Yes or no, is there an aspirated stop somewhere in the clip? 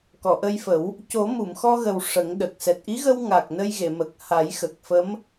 no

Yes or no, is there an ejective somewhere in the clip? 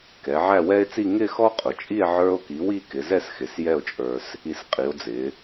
yes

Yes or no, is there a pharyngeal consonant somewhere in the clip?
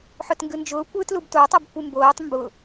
yes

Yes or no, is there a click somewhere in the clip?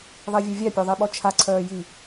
yes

